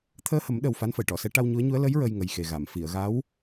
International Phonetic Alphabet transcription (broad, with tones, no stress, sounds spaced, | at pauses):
t̪ʰ əː˧ h ə˨˩˦ m ɗ ə˨˩ w f a˧˥ n f ə˨˩˨ j ʈ ɔ˨˩˨ s ɛ˧˥ ʈ a˧ w ɲ u˧˥ ə̯ ɲ u˧˥ ə̯ l ə˧˥ j ɹ ə˧ j ŋ ə˨˩ j x e˨˩ ɣ a˨˩˨ m f i˨˩˨ ə̯ ɣ a˧˥ w